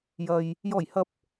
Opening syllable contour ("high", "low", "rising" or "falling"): low